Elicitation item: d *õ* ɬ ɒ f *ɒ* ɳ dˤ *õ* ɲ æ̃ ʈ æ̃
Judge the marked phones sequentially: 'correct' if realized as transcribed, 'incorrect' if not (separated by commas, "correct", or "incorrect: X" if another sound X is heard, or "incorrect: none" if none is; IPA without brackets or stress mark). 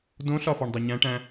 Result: correct, correct, incorrect: o